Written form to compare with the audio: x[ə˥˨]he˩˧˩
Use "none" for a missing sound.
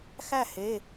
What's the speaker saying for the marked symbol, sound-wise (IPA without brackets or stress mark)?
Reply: æ˥˨